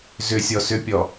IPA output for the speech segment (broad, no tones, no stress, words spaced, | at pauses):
zʏsʲɔ sʏpʲɔ